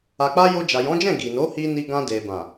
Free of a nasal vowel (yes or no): no